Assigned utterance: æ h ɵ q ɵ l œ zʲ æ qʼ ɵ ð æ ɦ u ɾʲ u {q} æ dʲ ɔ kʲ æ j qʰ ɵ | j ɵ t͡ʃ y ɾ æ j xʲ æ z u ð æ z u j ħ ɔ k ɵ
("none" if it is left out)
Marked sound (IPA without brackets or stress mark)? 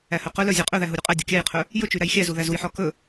qʼ